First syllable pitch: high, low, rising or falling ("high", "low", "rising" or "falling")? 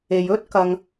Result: low